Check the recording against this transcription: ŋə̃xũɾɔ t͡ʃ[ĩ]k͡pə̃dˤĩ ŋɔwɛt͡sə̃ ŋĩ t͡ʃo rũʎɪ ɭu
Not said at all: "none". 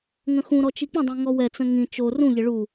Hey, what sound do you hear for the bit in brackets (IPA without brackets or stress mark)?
i